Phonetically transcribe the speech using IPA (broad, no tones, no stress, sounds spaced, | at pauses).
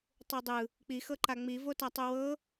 tˤ u dˤ ɯ | k͡p i x ɤ ǃ a ŋ͡m i v o t a tˤ u w ɤ